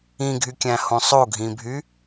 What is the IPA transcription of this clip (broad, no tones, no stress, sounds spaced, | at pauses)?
ĩ ɡʱ y kʲ æ̃ h õ sˤ o ɡʱ ĩ bʱ y